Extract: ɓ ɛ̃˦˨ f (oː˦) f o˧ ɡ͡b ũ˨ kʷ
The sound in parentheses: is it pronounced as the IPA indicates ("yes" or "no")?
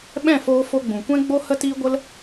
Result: no